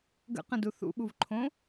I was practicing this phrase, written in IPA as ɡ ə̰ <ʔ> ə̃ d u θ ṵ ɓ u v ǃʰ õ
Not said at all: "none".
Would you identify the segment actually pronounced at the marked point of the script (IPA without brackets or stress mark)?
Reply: q